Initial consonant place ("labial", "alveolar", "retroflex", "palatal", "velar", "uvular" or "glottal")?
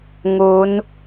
velar